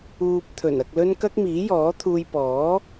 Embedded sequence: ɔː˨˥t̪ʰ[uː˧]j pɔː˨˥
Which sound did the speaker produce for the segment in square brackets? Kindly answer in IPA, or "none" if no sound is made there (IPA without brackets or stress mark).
uː˧